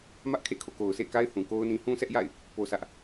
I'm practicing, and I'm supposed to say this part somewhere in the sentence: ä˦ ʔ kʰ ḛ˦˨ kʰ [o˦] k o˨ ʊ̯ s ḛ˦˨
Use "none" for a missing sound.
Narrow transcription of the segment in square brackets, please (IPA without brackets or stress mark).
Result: o̰˦˨